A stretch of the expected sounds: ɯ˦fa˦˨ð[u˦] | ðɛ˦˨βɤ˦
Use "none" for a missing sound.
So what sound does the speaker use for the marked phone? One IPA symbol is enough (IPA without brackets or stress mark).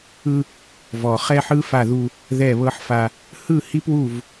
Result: u˦